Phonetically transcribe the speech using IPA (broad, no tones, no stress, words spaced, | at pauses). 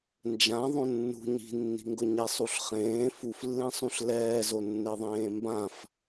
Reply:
nd͡ʒã ðˤõnːṳ ɲi̤nːi̤ŋɡʊ ɲɛsˤuɬχẽː fuflːẽsˤũɬ lɛːzonːeðˤẽː mbãf